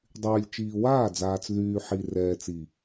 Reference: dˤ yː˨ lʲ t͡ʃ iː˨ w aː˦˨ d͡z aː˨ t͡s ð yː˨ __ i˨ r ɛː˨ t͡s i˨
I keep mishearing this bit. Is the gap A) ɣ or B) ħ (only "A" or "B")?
B